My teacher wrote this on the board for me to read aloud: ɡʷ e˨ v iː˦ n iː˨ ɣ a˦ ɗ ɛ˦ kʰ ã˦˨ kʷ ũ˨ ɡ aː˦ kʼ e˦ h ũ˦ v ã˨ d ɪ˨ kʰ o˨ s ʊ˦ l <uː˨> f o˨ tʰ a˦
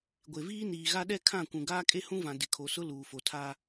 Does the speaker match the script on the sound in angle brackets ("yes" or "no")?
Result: yes